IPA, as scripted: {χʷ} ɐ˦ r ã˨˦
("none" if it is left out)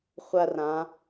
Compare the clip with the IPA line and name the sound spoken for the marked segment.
χʷ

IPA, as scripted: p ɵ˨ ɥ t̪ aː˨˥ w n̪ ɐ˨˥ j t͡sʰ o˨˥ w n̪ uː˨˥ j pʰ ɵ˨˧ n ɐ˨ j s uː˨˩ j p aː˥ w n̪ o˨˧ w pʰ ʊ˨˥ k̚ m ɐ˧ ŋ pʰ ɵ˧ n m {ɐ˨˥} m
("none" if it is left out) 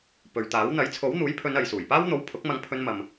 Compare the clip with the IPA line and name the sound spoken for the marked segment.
ɐ˨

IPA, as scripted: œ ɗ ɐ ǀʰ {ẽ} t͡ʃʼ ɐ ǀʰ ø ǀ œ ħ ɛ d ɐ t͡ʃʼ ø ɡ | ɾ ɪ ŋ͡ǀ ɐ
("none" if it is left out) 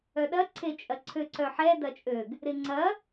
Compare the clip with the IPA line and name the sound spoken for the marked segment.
e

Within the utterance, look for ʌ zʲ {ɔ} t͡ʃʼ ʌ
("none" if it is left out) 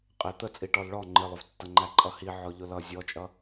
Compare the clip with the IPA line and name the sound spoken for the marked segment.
ɔ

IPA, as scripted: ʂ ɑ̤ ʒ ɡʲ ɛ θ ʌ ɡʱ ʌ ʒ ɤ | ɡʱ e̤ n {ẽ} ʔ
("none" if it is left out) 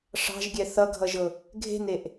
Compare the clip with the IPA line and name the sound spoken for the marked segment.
e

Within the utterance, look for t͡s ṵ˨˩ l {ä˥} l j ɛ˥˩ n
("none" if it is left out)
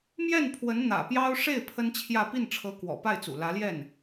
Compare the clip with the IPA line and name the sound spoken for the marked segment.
ä˧˥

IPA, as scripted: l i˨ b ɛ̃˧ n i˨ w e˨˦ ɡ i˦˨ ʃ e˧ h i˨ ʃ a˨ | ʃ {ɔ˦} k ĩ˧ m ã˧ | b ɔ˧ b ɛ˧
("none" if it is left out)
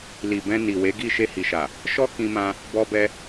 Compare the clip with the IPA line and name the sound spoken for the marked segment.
ɔ˦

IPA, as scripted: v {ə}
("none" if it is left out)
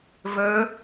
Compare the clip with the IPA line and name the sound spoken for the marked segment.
ɵ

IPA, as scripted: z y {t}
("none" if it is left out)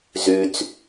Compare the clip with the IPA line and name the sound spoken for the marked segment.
t͡s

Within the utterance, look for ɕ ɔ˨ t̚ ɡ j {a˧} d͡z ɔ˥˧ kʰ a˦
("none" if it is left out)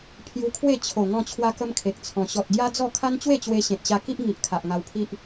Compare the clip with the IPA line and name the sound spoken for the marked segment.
a˦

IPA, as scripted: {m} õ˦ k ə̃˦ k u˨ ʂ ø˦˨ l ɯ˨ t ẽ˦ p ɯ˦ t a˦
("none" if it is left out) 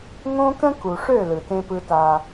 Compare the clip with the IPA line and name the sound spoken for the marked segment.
ŋ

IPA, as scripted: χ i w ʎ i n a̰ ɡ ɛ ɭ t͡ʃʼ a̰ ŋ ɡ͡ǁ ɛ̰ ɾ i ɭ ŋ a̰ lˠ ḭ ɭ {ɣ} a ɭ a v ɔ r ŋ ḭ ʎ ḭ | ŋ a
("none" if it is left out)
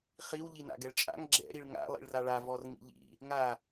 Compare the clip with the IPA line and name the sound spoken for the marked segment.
r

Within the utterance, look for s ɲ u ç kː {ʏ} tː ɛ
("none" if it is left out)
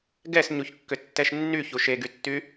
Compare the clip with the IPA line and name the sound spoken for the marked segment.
ʏ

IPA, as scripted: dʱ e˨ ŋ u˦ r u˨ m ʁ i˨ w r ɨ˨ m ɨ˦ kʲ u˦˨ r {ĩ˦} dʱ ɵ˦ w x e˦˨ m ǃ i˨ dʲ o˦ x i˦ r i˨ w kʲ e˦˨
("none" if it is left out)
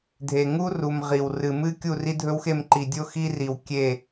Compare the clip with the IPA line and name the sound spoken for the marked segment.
i˦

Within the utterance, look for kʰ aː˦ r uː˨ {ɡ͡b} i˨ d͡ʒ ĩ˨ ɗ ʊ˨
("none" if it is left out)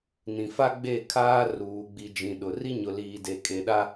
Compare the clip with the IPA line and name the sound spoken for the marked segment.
ɡ͡b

